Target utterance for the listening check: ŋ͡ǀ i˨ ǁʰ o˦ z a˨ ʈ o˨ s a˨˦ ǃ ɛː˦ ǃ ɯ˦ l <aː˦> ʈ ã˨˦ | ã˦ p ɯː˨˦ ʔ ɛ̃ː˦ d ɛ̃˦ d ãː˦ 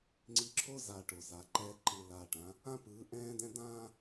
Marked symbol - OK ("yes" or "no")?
no